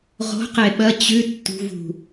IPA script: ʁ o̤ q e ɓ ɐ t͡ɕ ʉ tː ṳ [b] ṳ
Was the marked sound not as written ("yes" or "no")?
yes